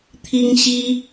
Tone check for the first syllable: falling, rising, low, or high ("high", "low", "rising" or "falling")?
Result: high